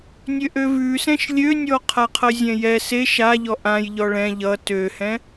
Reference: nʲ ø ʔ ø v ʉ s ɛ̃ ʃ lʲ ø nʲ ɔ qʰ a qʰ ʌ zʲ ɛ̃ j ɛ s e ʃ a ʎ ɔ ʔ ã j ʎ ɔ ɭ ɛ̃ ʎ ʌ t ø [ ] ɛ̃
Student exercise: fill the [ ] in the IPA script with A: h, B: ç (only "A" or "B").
A